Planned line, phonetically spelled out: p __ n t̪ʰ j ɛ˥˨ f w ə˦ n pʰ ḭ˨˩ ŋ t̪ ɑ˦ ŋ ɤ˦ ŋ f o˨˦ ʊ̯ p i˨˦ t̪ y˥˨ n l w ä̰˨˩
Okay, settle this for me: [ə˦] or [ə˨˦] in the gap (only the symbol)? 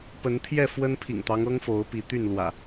ə˨˦